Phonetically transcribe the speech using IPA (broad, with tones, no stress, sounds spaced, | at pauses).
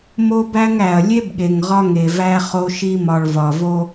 m o˦ b æ˦ ŋ æ˨ ɐ̯ lʲ e˦ b ɠ e˨ ŋ ʁ ɒ˦ ŋ e˨ v æ˦ χ o˦ ʃ i˦ m ɒ˨ ɭ v ɒ˨ v o˦